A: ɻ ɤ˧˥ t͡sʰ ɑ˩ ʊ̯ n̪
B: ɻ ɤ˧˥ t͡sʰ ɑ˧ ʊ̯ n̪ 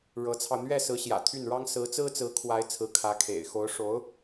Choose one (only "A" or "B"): B